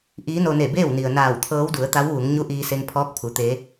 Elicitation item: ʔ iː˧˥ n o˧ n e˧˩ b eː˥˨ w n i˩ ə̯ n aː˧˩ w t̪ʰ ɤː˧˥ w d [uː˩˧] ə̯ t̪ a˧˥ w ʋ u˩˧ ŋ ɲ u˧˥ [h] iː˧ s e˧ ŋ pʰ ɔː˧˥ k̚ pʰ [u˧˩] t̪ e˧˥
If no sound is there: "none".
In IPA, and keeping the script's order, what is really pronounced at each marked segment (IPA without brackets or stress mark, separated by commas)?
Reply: u˩˧, ʔ, u˩˧